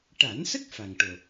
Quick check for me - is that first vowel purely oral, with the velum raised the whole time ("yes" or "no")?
yes